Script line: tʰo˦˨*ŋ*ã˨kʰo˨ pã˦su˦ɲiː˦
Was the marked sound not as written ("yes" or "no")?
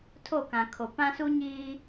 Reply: yes